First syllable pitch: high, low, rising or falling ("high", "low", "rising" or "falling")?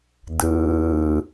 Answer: low